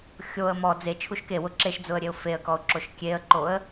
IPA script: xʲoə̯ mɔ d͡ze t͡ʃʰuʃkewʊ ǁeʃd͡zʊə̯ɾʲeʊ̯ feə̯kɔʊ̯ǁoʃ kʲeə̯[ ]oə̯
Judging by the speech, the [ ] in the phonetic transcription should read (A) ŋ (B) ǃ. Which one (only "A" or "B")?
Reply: B